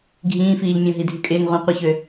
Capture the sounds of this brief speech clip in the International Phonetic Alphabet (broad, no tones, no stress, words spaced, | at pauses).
ɡʱĩːfiːʎmʲõ ɦidʱykʼɪːŋ ʁʷĩ qʷɪçø